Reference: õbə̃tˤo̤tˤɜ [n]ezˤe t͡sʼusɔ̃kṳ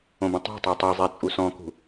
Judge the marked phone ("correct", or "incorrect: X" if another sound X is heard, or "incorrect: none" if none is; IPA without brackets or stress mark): incorrect: tˤ